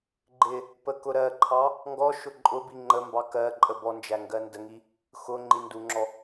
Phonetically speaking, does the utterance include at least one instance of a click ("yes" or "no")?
yes